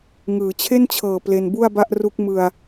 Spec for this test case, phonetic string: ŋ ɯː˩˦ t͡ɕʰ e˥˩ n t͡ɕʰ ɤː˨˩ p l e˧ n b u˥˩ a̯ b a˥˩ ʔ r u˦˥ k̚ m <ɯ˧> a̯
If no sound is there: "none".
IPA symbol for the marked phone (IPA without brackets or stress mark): ɯ˨˩